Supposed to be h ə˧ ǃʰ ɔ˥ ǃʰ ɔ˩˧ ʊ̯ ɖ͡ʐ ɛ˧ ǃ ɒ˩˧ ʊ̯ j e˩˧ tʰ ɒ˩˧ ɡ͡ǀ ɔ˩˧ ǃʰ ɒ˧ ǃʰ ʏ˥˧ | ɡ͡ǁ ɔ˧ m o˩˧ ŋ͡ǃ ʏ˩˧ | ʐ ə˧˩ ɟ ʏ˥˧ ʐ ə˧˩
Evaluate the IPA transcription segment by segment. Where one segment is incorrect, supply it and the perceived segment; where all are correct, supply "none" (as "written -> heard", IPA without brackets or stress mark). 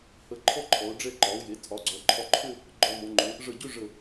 ɡ͡ǁ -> ɡ͡ǃ